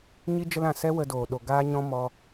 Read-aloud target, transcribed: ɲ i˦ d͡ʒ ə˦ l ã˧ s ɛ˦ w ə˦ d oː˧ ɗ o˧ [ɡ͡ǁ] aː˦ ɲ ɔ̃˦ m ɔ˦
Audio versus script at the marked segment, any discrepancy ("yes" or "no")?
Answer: yes